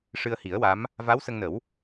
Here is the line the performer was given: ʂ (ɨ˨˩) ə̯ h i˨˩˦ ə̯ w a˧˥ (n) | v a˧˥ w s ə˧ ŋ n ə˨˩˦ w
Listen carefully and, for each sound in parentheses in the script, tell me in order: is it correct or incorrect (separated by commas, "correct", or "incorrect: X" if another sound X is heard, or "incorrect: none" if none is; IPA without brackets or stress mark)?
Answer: incorrect: ɨ˧, incorrect: m